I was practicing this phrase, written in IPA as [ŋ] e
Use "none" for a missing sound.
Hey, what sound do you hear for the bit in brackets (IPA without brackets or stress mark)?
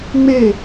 ŋ͡m